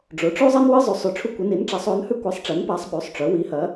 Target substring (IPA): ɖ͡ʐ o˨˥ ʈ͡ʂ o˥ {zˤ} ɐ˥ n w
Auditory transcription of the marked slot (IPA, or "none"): zˤ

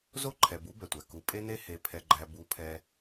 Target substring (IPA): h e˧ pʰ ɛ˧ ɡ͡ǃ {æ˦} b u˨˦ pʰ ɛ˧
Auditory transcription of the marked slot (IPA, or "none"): æ˧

